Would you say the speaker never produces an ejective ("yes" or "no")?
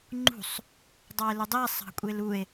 no